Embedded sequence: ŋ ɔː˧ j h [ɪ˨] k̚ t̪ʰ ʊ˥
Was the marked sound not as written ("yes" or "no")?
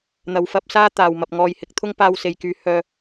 yes